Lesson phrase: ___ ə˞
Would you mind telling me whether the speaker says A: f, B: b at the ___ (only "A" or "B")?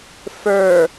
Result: A